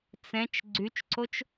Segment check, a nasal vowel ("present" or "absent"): present